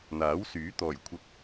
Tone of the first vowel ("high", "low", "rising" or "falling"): rising